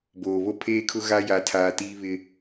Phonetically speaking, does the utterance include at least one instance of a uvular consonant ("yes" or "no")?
no